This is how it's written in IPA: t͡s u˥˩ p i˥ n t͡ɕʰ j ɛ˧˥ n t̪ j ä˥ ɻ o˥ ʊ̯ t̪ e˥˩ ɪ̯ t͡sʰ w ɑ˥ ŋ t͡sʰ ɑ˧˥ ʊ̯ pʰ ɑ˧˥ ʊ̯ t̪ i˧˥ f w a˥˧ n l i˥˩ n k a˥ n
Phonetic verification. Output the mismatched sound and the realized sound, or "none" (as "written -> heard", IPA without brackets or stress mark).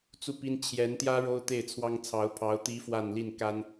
none